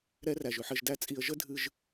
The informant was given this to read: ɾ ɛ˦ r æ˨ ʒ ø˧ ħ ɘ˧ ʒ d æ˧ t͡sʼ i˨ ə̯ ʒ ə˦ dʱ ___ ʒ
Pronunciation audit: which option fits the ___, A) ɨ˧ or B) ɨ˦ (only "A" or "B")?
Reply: A